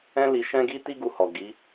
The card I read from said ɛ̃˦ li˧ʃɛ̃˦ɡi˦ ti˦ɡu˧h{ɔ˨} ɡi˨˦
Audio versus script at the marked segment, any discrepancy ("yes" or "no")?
no